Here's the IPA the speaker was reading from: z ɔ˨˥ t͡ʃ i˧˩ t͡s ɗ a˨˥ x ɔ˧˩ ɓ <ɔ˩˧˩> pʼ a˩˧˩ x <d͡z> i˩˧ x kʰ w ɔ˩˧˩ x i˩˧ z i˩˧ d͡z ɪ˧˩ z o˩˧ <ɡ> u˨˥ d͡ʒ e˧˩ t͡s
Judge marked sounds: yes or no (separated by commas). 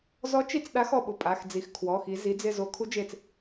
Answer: no, yes, no